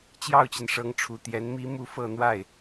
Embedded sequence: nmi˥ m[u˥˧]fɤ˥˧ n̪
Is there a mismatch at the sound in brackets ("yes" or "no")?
no